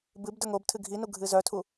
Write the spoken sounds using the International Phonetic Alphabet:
bɨb də˞ŋobtʰɨ ɡʱinu ɡʱɨzœtʰu

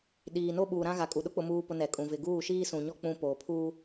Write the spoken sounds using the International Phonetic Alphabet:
ɗiː˨no˦ɓuː˨ ɾã˦ɣa˨kʼu˨ ɗʊ˦k͡pʊ˨muː˨pʊ˨ nɛ˨kʼũ˨ vɪ˨ɡuː˦˨ ʃiː˦sũ˨ ɲɔ˦ k͡pũ˦ poː˨pʰuː˦

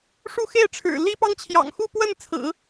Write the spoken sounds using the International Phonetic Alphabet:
ʂu˥˧xe˥˩ɪ̯ʈ͡ʂʰɻ̩˨˩ li˥pɑ˥ŋ t͡ɕʰjɑ̰˨˩ŋ xu˥˧pwə˥˩nt͡sʰɹ̩˨˩˦

